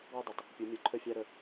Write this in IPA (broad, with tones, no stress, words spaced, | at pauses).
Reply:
wu˥dˤe˩tˤ | pʲu˩˧mʲo˩˧ ǃʰə˥fʲæ˥ɾə˧